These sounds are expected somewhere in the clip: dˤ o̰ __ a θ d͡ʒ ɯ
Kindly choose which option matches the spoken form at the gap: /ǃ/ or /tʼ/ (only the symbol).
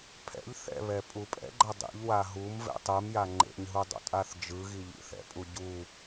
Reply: tʼ